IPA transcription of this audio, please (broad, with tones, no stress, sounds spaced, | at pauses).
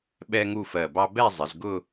ɓ ɛ˥ ŋ u˥˧ f ɜ˧˩ b ɑ˥ b ɛ˥˧ zˤ ɪ˩˧ z ɡ ʊ˥˧